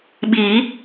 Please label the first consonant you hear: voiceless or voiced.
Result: voiced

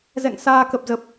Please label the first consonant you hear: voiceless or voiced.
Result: voiced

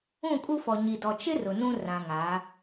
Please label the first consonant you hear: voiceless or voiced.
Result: voiceless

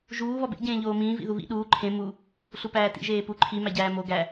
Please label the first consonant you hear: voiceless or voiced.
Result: voiced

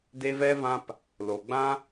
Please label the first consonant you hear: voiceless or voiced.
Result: voiced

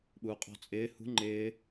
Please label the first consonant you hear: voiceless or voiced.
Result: voiced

